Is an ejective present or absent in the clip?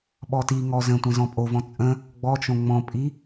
present